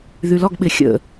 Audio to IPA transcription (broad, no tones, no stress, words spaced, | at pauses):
ðylɔɡɓɪ xʲə̰